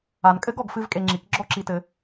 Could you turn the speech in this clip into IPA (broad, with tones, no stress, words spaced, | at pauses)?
a˨nkʼɘ˦ɡ ɔ˧ɡfɨ˦vkʼe˧ŋ͡ǁi˨˦k ɡ͡ǁɔ˦˨ǁi˧tɘ˧